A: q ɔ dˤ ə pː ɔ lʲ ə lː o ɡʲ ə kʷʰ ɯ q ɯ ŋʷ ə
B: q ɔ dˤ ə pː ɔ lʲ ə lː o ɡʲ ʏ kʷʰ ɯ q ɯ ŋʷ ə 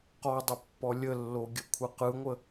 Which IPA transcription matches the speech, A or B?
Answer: A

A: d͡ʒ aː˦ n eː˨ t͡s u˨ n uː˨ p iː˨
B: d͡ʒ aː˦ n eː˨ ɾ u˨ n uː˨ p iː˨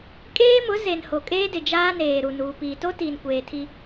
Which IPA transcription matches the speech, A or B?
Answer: B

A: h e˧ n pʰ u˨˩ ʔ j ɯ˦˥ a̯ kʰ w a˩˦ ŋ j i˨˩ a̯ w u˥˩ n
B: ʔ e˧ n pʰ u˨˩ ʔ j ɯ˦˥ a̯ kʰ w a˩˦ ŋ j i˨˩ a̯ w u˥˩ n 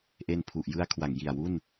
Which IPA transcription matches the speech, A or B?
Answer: B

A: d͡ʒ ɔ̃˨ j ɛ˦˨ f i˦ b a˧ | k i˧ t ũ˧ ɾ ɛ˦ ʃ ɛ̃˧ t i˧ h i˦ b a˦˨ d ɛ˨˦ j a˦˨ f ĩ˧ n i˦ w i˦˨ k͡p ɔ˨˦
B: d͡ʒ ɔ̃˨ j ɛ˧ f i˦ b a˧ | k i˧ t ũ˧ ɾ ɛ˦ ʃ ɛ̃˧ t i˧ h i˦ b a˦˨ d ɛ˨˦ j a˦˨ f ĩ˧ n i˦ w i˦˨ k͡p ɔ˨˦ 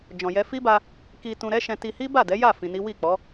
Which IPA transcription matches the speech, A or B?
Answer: B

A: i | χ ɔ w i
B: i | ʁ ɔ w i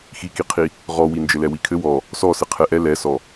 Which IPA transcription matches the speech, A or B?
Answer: B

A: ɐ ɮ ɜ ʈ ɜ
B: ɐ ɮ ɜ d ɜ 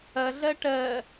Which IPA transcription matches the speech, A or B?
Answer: A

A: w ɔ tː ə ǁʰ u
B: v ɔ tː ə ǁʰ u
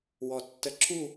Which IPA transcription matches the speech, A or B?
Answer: A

